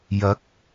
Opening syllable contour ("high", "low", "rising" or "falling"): rising